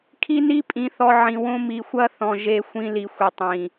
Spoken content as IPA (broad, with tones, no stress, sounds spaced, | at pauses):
kʰ i˦ n i˦ pʼ ĩ˨ θ ɔ˨ ʕ ĩ˨ w õ˦ m i˨ xʷ ɐ˦ θ ɔ̃˨ ʒ e˦ xʷ ĩ˦ l i˨ xʷ i˨ tˤ ĩ˨